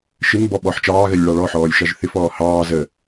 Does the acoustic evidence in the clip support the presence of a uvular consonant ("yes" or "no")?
no